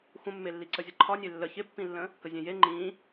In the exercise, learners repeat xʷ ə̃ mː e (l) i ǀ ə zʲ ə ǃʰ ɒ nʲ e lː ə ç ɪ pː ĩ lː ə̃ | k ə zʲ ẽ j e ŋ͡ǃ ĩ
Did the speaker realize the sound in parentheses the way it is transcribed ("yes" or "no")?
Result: no